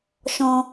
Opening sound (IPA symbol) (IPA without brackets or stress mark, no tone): ʃ